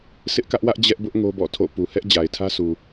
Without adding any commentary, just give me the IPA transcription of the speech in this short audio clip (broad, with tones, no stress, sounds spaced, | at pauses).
sʰ ɪ˦ ʔ k ä˦ ʔ w ä˦ ʔ d͡ʑ ɛ˦ ʔ b ʊ˦ ʔ ŋ o˦ b ɔ̰˦˨ tʰ o̰˦˨ p u˨ h ɛ˦ ʔ d͡ʑ a˨ ɪ̯ tʰ ä˦ sʰ u˨